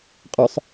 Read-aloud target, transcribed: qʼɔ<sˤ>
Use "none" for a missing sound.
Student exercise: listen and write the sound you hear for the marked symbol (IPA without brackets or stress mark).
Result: sˤ